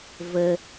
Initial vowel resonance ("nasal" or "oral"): oral